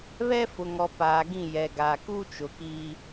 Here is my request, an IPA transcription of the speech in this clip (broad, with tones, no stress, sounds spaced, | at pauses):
β ɛ˦ f ʊ˨ ŋ ɔ˨ p aː˨ ɡ ĩ˦˨ j ɛ˨ ɡ aː˨ k u˦ t͡ʃ ʊ˨ k iː˦